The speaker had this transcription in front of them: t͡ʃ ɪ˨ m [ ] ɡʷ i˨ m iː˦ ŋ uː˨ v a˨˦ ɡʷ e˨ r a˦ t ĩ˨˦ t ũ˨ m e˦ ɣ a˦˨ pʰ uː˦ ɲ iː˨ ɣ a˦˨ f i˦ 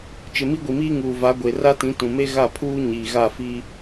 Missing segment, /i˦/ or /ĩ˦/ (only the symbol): i˦